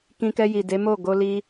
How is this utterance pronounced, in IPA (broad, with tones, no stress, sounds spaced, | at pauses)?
k ĩ˧ k ɛ˧ j i˨ d e˨˦ m o˦˨ ɡ o˧ l i˧